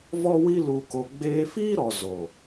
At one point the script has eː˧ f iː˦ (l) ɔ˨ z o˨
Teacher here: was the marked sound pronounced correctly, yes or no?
no